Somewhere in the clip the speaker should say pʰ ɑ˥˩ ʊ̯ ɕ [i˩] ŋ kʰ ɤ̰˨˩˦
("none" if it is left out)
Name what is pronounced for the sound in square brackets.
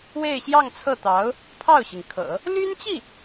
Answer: i˩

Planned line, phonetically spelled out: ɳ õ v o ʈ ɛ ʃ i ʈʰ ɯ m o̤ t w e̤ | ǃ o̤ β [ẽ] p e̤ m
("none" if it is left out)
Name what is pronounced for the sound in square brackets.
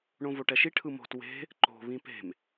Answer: ĩ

